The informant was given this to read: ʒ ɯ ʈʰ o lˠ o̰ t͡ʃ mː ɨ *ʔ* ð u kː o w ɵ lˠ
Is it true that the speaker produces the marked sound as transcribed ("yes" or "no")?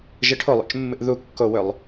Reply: yes